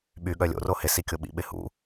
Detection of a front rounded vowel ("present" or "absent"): present